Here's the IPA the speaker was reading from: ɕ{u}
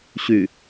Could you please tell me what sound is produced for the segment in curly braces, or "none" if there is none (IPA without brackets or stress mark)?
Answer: y